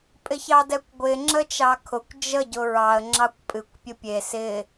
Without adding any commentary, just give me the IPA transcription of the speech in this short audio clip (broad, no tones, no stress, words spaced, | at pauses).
pʼɪçɑdɛkʷɡʷɪ ŋ͡ǁət͡ʃɑkʰʊkʷ d͡ʒə ɟʊɹɑə̯ ŋ͡ǁɑkʷpʼɨkʷ pʲʊpʲe sɪ